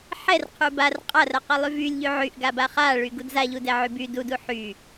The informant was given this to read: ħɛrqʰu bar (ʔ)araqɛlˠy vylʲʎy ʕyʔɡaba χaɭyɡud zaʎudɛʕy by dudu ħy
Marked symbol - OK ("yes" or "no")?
no